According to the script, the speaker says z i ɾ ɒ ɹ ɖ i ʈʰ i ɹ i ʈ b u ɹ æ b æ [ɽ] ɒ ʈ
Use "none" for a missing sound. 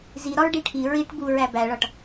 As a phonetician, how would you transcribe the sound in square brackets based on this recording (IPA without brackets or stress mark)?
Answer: ɭ